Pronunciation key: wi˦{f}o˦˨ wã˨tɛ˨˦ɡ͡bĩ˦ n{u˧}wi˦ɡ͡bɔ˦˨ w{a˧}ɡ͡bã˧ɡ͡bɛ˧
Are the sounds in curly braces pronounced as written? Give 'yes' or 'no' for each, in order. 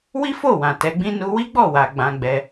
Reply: yes, yes, yes

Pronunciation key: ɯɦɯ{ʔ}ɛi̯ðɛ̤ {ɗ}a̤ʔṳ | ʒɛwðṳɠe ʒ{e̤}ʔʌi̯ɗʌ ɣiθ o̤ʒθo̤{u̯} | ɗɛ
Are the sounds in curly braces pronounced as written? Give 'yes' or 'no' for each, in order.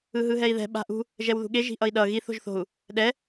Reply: no, no, no, yes

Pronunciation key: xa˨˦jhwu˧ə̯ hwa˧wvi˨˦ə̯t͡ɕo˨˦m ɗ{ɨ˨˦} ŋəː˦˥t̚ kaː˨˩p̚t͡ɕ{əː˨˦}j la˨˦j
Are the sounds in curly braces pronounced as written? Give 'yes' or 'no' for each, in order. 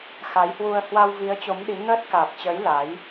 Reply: no, yes

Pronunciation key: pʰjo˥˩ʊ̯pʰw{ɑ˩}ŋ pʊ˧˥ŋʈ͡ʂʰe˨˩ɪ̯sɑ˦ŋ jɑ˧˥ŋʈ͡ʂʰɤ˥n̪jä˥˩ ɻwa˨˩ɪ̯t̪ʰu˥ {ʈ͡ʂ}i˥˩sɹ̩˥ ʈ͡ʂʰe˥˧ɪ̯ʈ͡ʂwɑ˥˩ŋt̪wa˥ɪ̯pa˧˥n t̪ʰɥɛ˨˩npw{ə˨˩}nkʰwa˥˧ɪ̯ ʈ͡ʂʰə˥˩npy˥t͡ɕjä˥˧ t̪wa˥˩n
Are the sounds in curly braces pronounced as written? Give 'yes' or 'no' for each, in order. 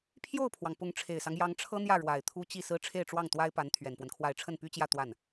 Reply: yes, no, no

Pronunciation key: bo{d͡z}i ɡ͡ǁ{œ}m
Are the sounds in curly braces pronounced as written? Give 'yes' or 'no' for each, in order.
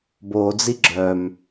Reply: yes, yes

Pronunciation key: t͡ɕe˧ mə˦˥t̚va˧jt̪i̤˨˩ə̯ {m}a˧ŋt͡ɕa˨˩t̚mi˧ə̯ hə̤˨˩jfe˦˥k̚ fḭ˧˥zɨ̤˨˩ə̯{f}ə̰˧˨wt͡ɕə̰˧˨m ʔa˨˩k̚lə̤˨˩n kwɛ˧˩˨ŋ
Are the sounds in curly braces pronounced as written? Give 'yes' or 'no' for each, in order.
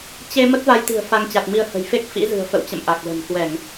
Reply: no, yes

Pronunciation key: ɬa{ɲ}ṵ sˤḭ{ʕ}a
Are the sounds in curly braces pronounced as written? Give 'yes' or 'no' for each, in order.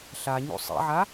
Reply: yes, yes

